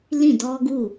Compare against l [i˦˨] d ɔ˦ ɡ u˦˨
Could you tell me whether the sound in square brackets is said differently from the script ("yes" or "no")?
yes